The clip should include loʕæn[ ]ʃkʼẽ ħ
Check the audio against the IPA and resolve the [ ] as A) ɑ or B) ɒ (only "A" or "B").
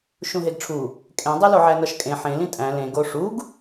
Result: B